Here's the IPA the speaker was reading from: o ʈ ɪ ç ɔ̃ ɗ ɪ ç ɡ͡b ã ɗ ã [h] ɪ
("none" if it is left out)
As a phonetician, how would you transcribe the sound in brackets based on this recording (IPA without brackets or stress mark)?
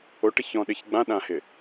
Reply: h